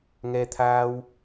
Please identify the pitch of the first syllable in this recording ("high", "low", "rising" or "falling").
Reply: low